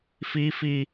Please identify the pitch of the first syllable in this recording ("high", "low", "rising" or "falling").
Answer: high